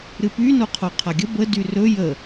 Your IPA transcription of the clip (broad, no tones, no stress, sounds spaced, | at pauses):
ɾ ɨ p y n o qʰ o qʰ a ɡʲ ə b ə d y r ɵ j ə